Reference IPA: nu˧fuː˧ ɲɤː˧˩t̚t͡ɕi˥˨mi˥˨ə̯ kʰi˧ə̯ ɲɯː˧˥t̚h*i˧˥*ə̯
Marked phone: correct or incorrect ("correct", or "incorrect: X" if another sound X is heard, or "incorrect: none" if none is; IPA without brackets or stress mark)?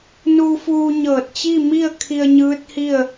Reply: incorrect: i˥˨